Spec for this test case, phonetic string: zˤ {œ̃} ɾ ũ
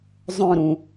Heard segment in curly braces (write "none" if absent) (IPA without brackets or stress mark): œ̃